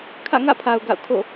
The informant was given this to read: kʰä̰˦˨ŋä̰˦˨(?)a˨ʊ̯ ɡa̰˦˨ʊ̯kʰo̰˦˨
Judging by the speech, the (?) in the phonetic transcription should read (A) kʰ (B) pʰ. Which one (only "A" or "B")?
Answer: B